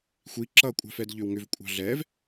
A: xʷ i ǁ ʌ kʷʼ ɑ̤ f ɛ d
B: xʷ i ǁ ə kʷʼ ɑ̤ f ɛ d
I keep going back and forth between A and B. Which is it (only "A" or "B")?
A